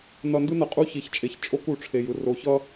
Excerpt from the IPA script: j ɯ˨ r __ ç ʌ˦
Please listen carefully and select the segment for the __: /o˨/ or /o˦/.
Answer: o˨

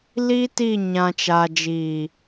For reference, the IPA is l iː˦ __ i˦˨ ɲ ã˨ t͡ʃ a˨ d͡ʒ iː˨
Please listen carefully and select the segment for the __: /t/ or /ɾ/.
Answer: t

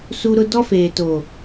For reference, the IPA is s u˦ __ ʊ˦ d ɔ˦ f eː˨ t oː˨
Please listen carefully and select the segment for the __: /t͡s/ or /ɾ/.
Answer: ɾ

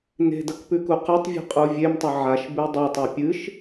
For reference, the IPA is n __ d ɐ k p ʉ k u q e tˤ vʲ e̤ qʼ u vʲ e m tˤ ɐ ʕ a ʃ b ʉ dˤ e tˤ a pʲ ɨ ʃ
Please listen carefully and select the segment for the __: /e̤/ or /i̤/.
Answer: e̤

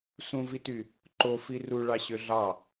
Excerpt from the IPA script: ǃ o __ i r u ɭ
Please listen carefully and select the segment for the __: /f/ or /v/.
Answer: f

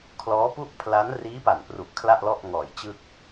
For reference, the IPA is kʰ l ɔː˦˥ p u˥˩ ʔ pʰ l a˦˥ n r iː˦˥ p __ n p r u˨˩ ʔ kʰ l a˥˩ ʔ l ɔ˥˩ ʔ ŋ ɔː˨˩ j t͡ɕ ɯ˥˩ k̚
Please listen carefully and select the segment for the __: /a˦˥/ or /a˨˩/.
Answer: a˨˩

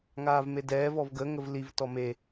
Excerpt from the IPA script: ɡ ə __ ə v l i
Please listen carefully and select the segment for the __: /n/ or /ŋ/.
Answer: ŋ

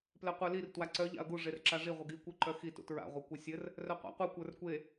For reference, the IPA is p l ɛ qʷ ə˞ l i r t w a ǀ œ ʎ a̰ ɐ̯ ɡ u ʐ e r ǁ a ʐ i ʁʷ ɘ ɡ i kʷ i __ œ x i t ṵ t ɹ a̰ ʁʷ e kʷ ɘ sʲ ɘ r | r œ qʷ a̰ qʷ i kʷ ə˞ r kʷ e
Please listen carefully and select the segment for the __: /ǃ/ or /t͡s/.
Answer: ǃ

